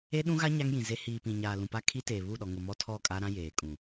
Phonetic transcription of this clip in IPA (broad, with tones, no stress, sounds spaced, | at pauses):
e˦ ɗ ũ˦ ɣ a˦ ɲ a˦ ŋ j ĩ˨ z e˦ h iː˨ p ĩ˨ ɲ aː˨ l ũ˨ p a˦ kʰ i˦ t eː˨ β u˦˨ ɗ ɔ˨ ŋ ʊ˨ m ɔ˦ tʰ ɔ˦˨ kʼ a˦ ɾ ã˦ j eː˨ kʼ ũ˨